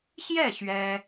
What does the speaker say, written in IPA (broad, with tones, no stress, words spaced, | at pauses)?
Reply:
ɕjɛ˥˩ ɕɥɛ˥